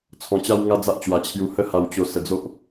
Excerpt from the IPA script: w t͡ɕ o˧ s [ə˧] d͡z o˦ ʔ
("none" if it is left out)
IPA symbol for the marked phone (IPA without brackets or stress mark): ə˧